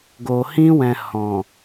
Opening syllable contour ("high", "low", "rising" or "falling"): low